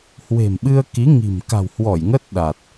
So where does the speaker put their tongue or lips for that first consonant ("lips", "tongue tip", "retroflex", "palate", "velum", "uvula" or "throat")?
throat